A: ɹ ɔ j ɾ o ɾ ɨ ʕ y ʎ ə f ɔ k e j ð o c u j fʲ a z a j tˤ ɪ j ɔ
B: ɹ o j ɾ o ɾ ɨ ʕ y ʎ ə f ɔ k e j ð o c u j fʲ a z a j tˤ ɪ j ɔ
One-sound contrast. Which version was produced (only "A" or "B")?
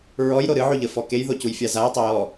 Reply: A